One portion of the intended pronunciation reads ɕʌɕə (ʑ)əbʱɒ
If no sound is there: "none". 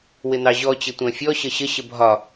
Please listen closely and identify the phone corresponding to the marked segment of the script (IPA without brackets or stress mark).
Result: ɕ